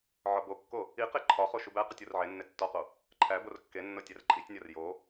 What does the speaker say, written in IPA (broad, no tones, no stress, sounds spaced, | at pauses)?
ʕ ɒ b o kː o | i q e ǃʰ ɒ χ o ʃ u b æ q u tʲ o r ʕ e nː e tː ɒ q o | ǃʰ æ b o r kː e nː o tʲ æ r ǃʼ i tʲ nʲ ɒ r j o